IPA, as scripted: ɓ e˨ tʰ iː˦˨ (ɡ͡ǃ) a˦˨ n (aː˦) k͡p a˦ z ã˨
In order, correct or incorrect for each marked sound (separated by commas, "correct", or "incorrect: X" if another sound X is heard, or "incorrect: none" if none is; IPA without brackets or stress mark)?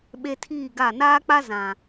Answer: incorrect: ɡ, correct